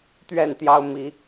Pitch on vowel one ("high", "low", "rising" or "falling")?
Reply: falling